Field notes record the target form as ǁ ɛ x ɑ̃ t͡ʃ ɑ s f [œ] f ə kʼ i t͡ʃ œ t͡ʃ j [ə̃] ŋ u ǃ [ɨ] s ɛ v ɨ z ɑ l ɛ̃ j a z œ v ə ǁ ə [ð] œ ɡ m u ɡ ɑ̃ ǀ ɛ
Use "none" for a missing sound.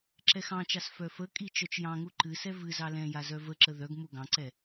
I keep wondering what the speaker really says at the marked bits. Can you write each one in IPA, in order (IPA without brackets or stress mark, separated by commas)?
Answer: œ, ɑ̃, ɨ, ð